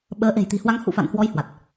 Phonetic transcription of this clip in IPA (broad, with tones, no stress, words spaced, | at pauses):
ɓəː˨˦ʔe̤˨˩jt̪i̤˨˩hwa˧ŋ hṵ˧˨fa̰˧˨nhwɔ˧j hwa˨˩t̚